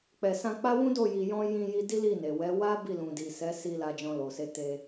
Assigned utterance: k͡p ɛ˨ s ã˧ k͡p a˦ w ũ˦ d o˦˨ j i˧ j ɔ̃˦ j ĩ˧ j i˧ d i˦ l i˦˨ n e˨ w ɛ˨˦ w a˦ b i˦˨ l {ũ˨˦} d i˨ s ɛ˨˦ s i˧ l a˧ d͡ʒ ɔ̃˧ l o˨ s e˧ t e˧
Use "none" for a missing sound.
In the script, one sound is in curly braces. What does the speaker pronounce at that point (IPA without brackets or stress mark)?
ũ˨